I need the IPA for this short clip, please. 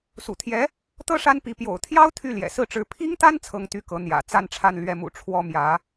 sṵ˨˩t̪ʰjɛ˧˥ | t̪ɤ˥ ʂa˥npi˧˥ pjo̰˨˩ʊ̯t̪ʰjɑ˥ʊ̯ t̪ʰy˥˩ljɛ̰˨˩sɹ̩˥˩ʈ͡ʂɻ̩˧˥ pʰi˥ŋt̪a˥n t͡sʰɤ˥ŋt̪y˥kɤ˧˥ n̪jä̰˨˩ t͡sa˥˧n ʈ͡ʂʰa˥˧nlɥɛ˥˩mṵ˨˩ ʈ͡ʂʰwɔ˥mjä˧˥

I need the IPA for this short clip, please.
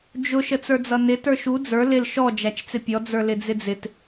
d͡ʒʊ ʃət͡sə˞d͡zʌnɪ tə˞ʃu d͡zə˞ lɪl ʃɔ d͡ʒæt͡ʃt͡sɪpʲɔ d͡zə˞lɪd͡zɪd͡zɪt

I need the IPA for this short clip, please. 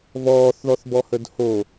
vɔːθðɔθbɔhəd ho

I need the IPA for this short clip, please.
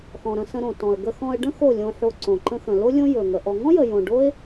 xɔ̃˨ ɾə̃˧sə̃˧ɾõ˨ tɔ̃˨ə̯ ɡə˧xɔ̃˧ə̯ɖə̃˦ xo˦˨lʲõ˧ħo˧ ǀõ˨ ǃə̃˧xə̃˨lo˦ lʲõ˦ jɵ˨ŋə˨ ʔɔ˨ŋɔ̃˦jə˨jõ˨ ɖo˦ɪ̯

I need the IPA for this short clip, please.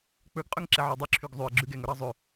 k͡pɵɡqʼɵŋ ǁɛʕɔdˤʉ ǁʰyɡzˤʉə̯ ɡ͡ǁʉɡɛŋ ɵɾɑzˤø

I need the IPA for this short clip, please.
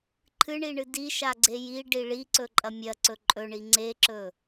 ǃʰɨɳiɳɨ diʃaɡ͡ǀe ji ɖiɭi ǀɵǃʼɐmʲɐǀɵ ǃʼɵɳi ŋ͡ǀeǁɵ

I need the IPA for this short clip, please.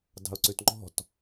dɑ̤ʊ̯ǀʉtŋ͡ǃɔ̤t

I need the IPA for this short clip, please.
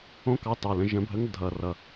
õ˦˥kɑ˨˥tɑ˨˩lə̃˧ ʒə̃˨˩˦bʱə˨˥ŋ dʱʌ˨˩rʌ˨˩

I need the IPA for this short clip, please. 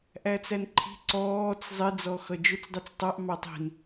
ʔæt͡sænǃʰi̤ ǀɔːt͡s zˤɪd͡zɔ xʌd͡ʒʊt͡sdˤit͡s tˤɑʔ mɑtˤi̤n

